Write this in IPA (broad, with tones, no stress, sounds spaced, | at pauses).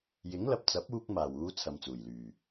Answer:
j ɪ˨˥ ŋ l ɐ˨ p̚ t͡s ɐ˨˥ p̚ uː˥ k̚ m aː˨˩ w uː˧ t͡sʰ ɐ˧ m t͡s uː˨˩ j l yː˨˩